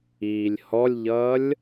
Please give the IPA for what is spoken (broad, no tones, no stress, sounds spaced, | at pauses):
iː lʲ h ɔ lʲ ʎ ʌː lʲ